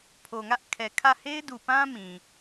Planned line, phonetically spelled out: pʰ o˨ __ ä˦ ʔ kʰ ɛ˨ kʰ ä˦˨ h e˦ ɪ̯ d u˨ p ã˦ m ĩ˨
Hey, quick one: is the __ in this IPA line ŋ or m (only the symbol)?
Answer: ŋ